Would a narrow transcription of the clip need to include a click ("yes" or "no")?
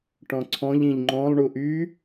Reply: yes